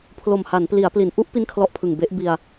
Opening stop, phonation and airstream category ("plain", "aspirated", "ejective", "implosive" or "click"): aspirated